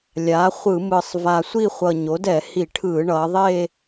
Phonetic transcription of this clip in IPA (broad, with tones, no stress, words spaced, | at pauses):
lʲaː˩˥χʷɯ˧˩˧mɯ˨˩sˤ va˨˩sʷi˥˧χʷʌ˨˩ ɲo˩˥dɛ˧˩˧ hi˧˩˧ʈʰɯː˧˩˧ ɳʌː˩˧ðˤe˥˧